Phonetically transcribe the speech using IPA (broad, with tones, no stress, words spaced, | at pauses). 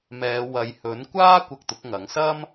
mɛː˨˧ wɐ˨jhɵ˨˥nkʷaː˥ kʷɐ˧k̚t̪ʊ˨˥k̚ŋɐ˨˥ŋ sɐ˥m